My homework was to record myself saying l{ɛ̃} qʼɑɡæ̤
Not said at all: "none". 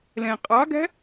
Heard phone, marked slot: ɛ̃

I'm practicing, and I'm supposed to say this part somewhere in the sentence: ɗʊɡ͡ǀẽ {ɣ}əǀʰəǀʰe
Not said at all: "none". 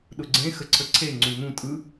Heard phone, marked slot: x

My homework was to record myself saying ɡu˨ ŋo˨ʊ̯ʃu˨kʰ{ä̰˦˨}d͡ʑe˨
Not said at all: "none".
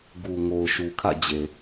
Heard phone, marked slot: ä̰˦˨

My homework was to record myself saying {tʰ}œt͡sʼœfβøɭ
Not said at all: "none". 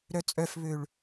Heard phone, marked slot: ɾ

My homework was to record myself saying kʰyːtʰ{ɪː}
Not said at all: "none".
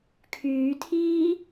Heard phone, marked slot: iː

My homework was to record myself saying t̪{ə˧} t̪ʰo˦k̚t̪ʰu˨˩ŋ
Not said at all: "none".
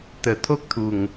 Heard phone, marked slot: ə˨˩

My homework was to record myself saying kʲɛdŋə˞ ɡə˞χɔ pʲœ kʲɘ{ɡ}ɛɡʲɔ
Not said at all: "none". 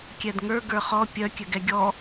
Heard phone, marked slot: ɡ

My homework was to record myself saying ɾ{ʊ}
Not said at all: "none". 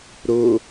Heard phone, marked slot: ʊ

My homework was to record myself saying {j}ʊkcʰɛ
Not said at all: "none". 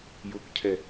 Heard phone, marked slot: j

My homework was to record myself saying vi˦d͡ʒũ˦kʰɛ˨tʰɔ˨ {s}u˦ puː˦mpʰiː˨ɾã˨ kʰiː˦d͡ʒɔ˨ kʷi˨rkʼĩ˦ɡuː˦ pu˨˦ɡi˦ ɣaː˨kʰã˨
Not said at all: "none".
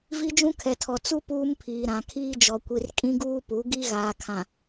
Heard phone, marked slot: t͡s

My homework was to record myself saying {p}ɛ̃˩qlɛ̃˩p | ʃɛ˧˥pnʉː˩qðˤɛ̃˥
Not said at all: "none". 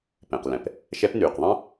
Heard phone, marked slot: p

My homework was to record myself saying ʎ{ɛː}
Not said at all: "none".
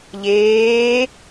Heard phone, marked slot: eː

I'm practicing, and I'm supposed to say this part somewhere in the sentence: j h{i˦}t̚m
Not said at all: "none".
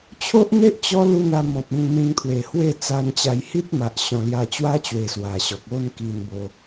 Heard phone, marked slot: i˦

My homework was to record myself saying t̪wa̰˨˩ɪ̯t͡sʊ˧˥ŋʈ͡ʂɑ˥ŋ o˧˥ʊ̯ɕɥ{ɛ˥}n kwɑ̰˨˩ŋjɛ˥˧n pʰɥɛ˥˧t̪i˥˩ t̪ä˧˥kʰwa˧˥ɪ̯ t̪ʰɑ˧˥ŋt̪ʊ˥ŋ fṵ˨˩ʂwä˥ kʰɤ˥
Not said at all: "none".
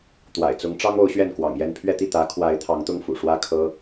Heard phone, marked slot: ɛ˥˩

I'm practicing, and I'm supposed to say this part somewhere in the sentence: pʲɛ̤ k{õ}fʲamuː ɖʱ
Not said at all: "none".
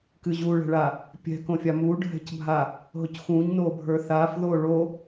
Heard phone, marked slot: õ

